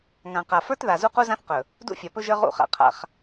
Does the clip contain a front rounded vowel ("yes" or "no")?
no